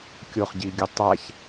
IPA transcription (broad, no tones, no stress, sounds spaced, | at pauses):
kʲ o χ ɟ i ɡʲ ɵ tˤ a ç